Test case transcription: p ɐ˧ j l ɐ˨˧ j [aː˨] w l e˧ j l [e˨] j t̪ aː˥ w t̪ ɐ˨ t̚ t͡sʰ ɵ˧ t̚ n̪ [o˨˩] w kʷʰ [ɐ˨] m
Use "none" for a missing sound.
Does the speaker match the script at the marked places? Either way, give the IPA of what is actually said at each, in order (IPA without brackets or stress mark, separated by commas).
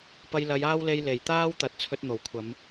aː˥, e˨˩, o˨˩, ɐ˨˧